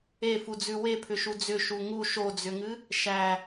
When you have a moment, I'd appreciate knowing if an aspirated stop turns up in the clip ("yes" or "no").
yes